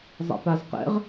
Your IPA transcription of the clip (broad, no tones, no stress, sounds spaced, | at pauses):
zˤ ɛ̰ p a z q ɛ̰ ʁ